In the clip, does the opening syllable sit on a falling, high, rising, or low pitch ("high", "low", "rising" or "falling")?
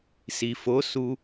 low